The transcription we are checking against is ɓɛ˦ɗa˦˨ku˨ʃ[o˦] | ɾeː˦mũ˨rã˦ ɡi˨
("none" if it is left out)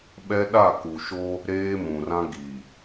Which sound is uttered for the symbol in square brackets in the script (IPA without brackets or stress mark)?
o˦